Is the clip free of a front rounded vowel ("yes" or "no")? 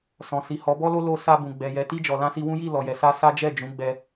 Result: yes